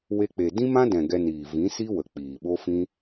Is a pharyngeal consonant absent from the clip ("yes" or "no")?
yes